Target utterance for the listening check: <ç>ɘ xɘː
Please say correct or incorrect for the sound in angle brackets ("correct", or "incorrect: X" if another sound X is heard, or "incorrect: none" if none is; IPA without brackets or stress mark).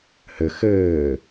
incorrect: h